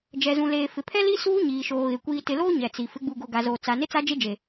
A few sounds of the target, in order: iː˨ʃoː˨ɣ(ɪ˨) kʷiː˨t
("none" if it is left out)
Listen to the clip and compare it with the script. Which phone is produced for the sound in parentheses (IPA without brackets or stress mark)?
ɪ˨